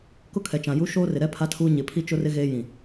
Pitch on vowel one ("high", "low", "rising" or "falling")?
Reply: high